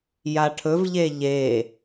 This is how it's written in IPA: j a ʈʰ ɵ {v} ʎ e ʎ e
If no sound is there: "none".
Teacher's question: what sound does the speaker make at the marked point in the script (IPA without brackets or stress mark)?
v